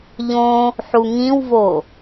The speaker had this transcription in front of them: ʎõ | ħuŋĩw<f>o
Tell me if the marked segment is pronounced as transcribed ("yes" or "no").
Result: no